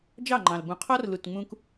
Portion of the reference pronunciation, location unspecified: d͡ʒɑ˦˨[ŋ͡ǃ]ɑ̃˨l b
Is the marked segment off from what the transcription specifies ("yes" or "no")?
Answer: no